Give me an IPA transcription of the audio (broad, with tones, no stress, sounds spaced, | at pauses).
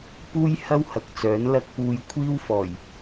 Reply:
p uː˥ j h ɐ˥ w h ɐ˨ k̚ t͡s œː˨˥ n l ɐ˥ k̚ p uː˧ j kʷʰ iː˥ w f ɔː˨˩ j